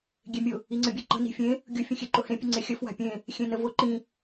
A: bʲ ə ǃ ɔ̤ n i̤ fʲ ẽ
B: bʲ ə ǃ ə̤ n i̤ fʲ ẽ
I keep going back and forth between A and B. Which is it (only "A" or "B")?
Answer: B